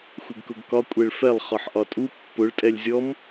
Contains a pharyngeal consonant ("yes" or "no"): yes